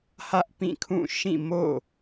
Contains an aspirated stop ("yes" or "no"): yes